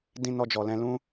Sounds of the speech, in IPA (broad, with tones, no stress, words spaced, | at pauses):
dĩ˦nɔ˦d͡ʒɔ˧lɛ̃˦ lũ˦